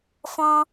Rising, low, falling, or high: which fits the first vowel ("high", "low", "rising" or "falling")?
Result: high